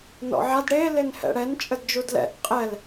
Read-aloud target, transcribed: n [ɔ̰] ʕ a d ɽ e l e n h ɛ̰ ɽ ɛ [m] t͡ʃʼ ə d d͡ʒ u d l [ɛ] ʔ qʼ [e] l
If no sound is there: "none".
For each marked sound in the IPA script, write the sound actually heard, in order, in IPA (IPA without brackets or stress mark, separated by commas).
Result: ɔ̰, n, ɛ̰, ɛ